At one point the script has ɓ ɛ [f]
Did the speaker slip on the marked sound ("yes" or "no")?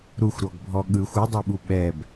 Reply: yes